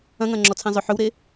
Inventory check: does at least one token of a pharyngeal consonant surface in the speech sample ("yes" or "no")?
yes